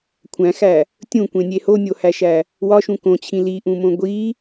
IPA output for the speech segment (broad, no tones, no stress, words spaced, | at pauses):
kʷʰæ̃xæ | tʲũkʷẽnʲe honʲohæʃæ | wɒʃũ kõt͡ɕʰĩ liʔũmõ ɡʷi